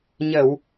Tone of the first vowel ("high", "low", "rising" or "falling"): low